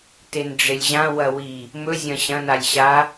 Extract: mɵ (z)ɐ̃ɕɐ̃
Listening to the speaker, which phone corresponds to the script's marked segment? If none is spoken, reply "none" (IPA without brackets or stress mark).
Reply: zʲ